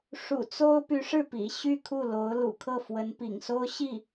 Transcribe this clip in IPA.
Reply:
ʂ ṵ˨˩ t͡s o˥ ʊ̯ p y˧˥ ʂ ɻ̩˥˩ p ḭ˨˩ ɕ y˥˧ kʰ u˥˩ l o˧˥ ʊ̯ l ṵ˨˩ kʰ ɤ˥˩ f w ə˧˥ n p ḭ˨˩ ŋ s o˥ ʊ̯ ɕ i˥˩

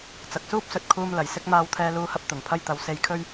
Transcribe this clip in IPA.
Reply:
t͡s ɐ˨ k̚ s uː˥ p̚ s ɵ˨ t̚ kʰ uː˧ m l ɐ˨˩ j s ɪ˥ k̚ m aː˧ w t̪ʰ ɛː˧ l uː˧ h ɐ˧ p̚ t̪ ʊ˨˩ ŋ pʰ ɐ˥ j t̪ ɐ˨˥ w s e˧ j kʰ ɵ˥ ɥ

